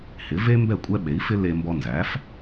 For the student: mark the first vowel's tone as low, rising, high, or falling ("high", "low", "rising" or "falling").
rising